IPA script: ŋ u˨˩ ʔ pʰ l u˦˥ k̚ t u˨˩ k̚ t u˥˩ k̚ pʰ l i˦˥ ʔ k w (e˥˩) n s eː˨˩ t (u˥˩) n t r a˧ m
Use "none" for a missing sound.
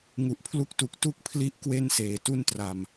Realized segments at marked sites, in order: e˥˩, u˥˩

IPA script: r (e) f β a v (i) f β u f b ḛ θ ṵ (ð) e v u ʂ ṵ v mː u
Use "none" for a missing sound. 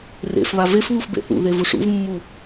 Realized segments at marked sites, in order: ḛ, e, ð

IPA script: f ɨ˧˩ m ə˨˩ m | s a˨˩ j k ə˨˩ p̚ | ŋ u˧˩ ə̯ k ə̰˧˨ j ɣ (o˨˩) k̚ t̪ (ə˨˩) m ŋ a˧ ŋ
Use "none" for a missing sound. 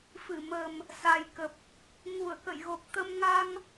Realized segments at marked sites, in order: o˨˩, ə˧

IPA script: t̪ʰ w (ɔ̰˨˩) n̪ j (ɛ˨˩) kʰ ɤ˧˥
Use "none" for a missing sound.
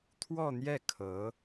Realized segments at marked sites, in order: ɔ˥˧, ɛ˥˩

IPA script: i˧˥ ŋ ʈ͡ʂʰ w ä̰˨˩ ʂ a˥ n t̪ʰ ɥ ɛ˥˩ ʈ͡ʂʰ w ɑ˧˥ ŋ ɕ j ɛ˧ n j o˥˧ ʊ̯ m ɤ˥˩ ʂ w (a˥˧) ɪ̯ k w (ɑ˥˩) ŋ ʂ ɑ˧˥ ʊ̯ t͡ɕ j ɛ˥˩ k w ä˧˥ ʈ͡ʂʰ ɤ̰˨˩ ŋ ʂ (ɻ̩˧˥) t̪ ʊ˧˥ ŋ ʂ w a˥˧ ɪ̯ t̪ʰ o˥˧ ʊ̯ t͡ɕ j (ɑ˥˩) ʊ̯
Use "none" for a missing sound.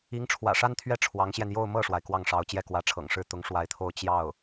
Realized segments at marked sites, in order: a˩, ɑ˥˩, ɻ̩˥˩, ɑ˥˩

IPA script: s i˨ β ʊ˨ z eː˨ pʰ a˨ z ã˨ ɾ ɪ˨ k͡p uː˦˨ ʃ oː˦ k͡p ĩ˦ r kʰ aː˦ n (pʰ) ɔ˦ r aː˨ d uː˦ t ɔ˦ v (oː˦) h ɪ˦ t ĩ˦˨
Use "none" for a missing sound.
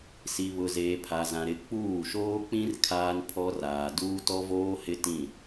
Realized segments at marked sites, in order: pʰ, oː˦

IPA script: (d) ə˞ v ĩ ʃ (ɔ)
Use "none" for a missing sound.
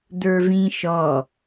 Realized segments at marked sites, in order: d, ɔ

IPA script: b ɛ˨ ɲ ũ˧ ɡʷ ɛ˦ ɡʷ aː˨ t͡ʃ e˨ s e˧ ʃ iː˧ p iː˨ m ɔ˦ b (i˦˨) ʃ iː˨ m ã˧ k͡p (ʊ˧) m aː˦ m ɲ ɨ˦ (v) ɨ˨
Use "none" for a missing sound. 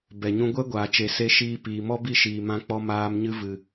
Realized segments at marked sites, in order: i˦˨, ɔ˧, v

